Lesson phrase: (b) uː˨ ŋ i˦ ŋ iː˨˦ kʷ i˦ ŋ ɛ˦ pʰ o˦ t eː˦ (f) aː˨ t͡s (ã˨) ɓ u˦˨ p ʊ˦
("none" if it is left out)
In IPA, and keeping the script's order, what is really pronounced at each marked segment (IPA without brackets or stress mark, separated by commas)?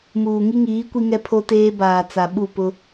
m, b, a˨